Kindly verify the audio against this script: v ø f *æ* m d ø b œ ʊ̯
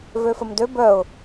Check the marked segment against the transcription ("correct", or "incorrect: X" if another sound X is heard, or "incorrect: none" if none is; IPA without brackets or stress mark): incorrect: ə